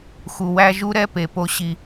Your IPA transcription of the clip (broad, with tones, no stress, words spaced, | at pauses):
xu˨wæ˦ ʒu˦ɾɛ˦ pe˨ po˦ɕi˦